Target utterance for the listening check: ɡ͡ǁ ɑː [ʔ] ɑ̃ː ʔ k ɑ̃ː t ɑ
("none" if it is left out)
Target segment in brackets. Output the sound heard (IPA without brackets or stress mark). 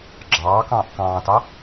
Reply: k